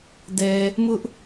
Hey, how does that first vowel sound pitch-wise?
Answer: low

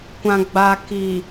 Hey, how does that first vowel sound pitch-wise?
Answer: low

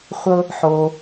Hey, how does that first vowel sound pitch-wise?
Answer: high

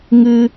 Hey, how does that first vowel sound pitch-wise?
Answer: high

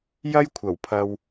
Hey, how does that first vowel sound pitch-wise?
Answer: high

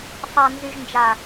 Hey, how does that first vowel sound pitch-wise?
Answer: low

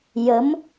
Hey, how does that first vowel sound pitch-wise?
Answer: rising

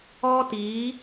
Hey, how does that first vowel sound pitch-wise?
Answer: high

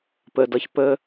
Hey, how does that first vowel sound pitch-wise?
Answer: low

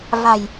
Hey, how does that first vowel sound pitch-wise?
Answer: low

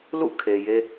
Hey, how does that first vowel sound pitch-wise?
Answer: falling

